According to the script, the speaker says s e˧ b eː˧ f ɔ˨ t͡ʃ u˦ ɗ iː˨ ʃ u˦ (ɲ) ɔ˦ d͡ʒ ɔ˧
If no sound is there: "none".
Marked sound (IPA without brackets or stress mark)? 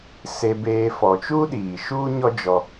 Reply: ɲ